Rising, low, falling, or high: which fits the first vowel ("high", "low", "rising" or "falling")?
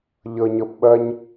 low